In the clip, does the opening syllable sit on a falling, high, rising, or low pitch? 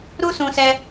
high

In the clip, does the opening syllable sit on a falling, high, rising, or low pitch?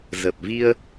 low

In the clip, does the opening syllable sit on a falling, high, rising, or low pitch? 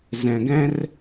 low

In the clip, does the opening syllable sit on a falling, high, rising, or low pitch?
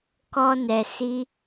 high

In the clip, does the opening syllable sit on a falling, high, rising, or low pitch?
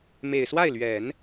low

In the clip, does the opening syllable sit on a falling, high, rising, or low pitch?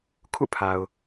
falling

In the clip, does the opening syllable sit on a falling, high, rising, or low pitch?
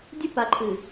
high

